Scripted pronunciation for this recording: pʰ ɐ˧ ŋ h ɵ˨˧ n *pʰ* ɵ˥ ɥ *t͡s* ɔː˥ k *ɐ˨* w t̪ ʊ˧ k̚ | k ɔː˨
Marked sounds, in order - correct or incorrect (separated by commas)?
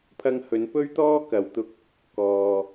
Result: incorrect, incorrect, correct